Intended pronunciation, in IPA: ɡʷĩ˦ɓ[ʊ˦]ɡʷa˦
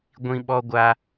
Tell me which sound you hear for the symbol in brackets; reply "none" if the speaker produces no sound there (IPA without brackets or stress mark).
ɔ˦